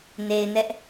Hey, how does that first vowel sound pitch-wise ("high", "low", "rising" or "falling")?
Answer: low